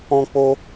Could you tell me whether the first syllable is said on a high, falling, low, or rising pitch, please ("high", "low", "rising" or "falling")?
high